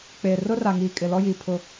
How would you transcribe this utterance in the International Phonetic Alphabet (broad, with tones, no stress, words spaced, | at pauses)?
k͡peː˨rʊ˦ra˨ ŋiː˨kʼɪ˨ lɔ˦jiː˨pʰʊ˦˨